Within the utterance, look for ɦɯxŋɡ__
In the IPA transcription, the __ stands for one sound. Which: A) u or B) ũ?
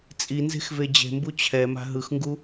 A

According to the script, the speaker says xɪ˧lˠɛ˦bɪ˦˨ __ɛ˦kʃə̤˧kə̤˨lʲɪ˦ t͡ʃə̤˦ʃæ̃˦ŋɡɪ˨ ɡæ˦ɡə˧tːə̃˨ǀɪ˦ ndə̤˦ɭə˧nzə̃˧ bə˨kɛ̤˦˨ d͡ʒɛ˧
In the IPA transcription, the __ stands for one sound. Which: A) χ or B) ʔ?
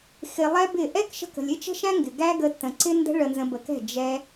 B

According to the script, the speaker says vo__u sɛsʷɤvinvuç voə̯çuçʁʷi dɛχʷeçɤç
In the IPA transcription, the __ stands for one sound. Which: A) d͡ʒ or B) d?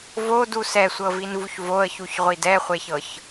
B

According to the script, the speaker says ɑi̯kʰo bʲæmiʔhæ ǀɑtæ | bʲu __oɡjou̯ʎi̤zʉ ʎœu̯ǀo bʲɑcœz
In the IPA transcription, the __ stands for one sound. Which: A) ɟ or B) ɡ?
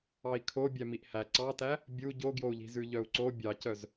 A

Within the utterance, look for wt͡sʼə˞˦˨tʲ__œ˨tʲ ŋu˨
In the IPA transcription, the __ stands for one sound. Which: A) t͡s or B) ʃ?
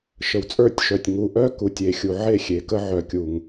B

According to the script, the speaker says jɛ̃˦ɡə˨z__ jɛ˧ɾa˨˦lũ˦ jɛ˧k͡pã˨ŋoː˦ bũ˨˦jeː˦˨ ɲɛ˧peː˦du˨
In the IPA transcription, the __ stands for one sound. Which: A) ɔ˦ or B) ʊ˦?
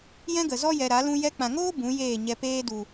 A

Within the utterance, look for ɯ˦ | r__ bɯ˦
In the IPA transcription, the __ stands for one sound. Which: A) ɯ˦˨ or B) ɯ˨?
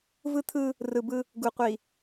B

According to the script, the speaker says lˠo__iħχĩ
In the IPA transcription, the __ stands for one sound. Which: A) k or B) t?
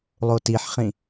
B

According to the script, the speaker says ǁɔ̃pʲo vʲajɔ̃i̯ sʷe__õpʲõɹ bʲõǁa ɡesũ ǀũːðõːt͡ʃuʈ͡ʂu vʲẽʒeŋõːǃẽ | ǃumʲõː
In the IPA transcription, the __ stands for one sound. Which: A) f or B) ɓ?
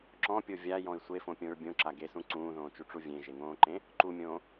A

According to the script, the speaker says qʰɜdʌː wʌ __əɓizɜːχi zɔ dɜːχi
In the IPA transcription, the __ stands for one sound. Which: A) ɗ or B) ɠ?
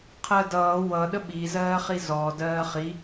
A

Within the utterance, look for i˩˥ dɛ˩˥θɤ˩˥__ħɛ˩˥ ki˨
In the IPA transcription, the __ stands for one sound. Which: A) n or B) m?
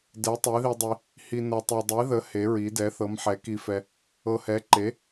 B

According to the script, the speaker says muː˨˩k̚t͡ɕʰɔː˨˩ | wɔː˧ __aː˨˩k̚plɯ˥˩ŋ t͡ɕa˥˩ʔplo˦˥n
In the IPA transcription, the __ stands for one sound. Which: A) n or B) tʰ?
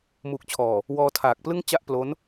B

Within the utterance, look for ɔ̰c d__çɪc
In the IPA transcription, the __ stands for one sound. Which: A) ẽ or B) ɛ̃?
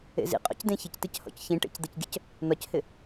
A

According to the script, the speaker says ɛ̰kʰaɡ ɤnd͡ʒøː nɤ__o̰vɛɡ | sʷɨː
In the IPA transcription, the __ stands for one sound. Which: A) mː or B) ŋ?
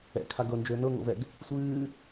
B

